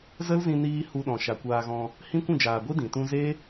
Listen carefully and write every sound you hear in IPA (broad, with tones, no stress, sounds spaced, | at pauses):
z ə˦ l z ĩ˧ n iː˧ h u˧ ɗ ɔ̃˨ ʃ a˨ kʷ aː˧ ɣ ɔ̃˧ | h ĩ˦ kʷ ũ˦˨ d͡ʒ aː˨ ɡʷ i˦ d ĩ˨ t ũ˦ z e˦